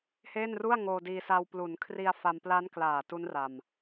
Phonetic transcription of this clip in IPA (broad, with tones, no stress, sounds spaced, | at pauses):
h eː˥˩ n r u˥˩ a̯ ŋ oː˧ d iː˧ s a˧ w p l u˩˦ n kʰ r i˧ a̯ f a˧ m p l a˦˥ n k l aː˨˩ t u˦˥ n r a˨˩ m